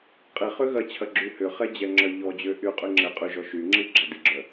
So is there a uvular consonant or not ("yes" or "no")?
yes